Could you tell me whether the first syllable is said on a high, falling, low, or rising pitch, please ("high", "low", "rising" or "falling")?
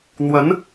rising